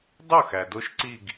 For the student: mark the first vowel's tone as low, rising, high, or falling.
falling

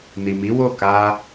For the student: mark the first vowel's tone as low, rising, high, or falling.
low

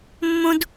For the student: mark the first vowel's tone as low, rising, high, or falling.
high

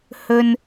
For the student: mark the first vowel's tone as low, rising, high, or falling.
low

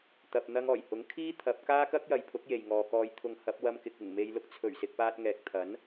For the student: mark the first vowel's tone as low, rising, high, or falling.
low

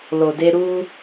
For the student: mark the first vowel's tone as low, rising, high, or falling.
low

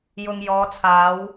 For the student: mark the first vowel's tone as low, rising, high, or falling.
low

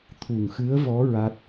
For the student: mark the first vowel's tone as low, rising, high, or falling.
low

